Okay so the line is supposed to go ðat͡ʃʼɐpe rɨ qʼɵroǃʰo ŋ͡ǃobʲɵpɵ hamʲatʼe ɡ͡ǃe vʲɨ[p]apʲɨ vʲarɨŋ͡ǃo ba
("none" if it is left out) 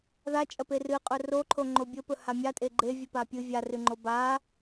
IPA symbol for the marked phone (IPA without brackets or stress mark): p